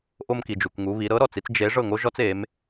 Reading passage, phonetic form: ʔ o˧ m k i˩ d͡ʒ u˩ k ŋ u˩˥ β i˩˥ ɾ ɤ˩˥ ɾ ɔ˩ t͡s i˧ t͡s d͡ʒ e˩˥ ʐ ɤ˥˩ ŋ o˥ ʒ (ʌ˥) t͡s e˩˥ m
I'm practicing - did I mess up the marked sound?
yes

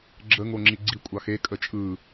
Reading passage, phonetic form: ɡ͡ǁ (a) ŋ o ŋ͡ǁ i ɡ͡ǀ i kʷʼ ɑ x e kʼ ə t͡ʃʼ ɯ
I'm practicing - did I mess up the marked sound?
yes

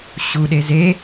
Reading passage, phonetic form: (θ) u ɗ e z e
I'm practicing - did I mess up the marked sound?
yes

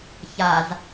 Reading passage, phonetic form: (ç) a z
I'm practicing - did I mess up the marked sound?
no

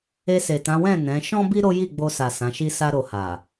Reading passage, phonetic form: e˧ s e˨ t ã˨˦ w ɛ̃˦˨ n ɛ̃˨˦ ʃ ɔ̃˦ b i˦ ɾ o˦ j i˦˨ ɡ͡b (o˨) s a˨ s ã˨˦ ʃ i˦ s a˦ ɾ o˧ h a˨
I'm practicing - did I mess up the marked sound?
yes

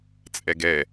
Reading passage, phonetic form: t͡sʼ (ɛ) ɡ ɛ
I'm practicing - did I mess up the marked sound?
no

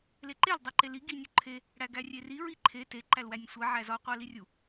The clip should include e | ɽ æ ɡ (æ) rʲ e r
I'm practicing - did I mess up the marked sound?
no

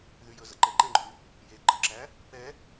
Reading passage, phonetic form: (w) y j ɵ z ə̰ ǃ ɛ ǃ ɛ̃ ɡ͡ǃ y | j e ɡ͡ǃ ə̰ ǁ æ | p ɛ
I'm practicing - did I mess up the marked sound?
yes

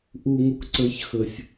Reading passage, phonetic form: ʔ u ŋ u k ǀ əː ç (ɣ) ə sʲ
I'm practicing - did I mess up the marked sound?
yes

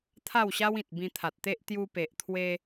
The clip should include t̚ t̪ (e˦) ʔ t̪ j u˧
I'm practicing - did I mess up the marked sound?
no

